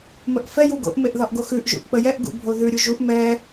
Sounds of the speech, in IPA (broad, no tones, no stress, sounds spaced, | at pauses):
m ə ʔ f ɛ j u ɡ o̰ ʔ m e ʔ ð ɒ ʔ ɡ o x ʉ ʔ ʒ ṵ ʔ k͡p ə j ɛ ʔ ɡ ṵ bʱ o ð ʉ ɾʲ u ʒ u ʔ m ɛ